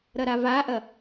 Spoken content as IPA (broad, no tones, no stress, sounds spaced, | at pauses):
ɾ ɐ ɾ a v a ʔ ɐ